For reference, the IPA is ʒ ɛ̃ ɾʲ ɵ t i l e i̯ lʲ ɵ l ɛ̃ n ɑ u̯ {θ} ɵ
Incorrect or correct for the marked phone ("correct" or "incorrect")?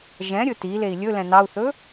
correct